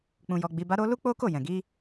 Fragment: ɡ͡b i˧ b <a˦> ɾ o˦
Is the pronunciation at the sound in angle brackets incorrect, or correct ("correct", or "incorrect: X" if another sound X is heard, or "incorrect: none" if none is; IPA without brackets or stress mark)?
correct